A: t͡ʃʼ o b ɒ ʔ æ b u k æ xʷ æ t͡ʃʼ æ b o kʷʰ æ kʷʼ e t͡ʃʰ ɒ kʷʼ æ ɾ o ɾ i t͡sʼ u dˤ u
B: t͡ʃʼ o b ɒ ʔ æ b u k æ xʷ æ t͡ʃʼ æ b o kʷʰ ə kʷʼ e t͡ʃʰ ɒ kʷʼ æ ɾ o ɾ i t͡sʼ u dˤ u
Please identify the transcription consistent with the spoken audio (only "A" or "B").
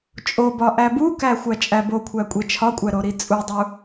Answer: A